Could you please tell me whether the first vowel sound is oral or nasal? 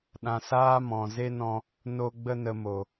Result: nasal